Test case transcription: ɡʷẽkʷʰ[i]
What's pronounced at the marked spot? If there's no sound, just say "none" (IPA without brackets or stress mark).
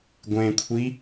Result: i